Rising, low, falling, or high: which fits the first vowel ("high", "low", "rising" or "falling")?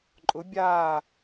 rising